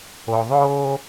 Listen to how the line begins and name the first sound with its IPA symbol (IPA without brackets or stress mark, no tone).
o